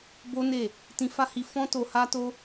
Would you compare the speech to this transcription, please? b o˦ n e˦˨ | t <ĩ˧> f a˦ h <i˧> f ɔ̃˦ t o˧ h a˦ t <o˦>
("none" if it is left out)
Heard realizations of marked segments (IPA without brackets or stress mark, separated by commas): ĩ˧, i˧, o˦